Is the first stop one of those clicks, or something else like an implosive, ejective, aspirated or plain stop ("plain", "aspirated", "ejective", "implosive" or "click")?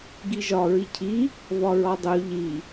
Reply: plain